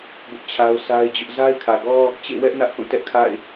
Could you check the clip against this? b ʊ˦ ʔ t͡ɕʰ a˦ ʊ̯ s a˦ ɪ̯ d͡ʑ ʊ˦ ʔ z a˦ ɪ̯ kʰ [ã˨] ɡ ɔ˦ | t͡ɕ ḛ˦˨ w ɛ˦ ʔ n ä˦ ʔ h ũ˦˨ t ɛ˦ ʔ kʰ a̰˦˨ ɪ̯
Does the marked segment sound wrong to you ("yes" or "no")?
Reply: yes